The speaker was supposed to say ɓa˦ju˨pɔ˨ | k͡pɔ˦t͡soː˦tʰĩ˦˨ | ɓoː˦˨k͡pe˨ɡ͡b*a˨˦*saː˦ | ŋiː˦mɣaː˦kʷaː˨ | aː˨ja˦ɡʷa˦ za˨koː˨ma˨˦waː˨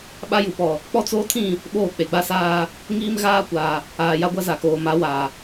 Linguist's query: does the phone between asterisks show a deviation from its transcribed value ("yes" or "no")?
yes